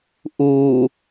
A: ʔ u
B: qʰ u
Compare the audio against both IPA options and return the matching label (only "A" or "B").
A